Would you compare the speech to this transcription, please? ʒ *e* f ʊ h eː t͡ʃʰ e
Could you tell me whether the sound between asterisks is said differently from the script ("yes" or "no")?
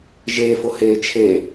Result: yes